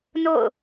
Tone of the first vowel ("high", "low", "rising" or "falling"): falling